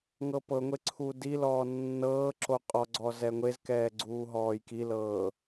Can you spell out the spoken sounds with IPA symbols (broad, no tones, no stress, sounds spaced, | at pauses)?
ŋ ɤ p ɤ ŋʷ e ǀʰ u d i l ɔː nː ɤː ǁ o qʼ ɔ ɡ͡ǀ ɔ z ɛ ŋʷ e z k ɛː ɡ͡ǀ uː ɦ ɔː j k i l ɤː